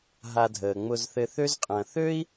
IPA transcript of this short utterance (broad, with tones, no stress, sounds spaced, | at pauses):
ɦ a˨ dʱ əː˩ ŋ͡m ʊ˨ z θ ɘ˨ θ ø˦ z qʼ ɐ̃˨ θ ø˥ i̯